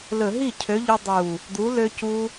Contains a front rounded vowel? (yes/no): yes